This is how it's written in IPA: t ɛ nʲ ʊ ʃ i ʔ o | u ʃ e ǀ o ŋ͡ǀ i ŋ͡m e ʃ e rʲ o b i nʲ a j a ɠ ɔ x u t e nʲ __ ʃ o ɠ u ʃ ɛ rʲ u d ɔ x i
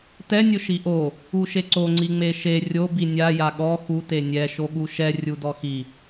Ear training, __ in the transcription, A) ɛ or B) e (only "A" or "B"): A